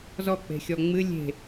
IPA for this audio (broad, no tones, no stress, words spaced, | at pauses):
zɔ k͡pe̤xʲɔŋ͡mɨ lʲe̤